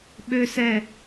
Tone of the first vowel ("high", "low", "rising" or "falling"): high